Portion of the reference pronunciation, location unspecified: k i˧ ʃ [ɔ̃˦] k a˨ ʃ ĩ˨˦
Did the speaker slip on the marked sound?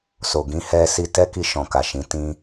yes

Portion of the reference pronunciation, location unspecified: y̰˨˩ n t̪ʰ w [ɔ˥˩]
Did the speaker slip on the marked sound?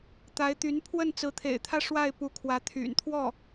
no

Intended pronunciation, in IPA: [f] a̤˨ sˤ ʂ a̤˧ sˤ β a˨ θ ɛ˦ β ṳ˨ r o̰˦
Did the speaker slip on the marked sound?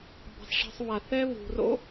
yes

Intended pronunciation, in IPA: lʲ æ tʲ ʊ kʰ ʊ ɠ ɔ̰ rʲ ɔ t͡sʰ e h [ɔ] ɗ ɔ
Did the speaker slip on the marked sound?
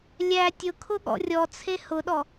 yes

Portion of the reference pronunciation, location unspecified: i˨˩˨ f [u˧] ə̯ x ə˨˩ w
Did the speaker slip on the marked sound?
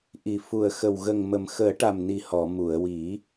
yes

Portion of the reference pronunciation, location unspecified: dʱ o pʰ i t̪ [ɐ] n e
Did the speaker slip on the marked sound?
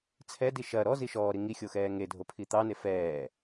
yes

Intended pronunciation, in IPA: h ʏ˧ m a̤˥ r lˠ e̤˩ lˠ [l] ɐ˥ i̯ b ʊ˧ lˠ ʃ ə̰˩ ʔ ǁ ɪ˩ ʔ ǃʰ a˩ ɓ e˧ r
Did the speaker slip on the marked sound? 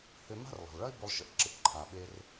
yes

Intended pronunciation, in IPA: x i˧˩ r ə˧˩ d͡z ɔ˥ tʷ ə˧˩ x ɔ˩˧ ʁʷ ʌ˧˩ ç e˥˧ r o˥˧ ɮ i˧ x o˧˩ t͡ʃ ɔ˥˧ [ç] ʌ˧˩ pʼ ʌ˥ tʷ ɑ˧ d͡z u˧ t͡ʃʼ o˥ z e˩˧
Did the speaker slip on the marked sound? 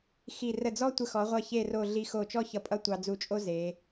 no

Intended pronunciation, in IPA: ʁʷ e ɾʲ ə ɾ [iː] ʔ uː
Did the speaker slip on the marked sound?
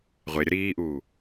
no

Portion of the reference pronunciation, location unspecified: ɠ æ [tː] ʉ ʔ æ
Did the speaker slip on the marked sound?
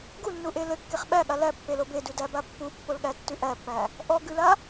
no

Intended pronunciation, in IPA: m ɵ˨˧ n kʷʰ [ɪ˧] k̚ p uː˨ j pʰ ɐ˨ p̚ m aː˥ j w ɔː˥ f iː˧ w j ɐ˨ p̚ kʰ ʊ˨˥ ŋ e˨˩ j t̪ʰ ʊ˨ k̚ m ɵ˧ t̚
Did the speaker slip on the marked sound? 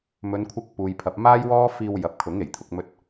no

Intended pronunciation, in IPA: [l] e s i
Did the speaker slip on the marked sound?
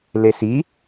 no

